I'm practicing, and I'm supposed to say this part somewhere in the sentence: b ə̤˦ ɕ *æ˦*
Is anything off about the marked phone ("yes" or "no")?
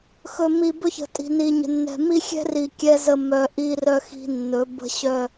yes